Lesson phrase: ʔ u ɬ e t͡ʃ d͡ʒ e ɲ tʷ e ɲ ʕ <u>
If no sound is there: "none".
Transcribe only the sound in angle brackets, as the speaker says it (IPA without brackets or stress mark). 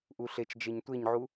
u